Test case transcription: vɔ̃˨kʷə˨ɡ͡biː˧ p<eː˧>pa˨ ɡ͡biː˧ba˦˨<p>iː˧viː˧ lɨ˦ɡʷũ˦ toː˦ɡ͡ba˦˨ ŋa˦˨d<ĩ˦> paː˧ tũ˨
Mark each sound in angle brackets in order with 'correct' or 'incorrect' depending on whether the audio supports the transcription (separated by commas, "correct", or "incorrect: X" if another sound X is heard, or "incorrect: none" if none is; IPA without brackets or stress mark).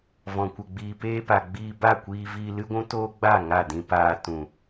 correct, incorrect: kʷ, incorrect: ĩ˧